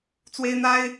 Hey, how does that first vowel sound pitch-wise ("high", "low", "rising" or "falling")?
high